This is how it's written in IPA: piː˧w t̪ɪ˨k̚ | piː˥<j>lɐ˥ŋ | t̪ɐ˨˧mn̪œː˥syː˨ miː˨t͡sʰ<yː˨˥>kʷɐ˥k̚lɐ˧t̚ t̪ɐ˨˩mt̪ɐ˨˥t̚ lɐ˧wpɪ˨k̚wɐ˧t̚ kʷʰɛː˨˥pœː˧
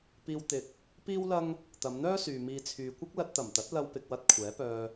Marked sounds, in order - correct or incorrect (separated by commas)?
incorrect, incorrect